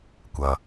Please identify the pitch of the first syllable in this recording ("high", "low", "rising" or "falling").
low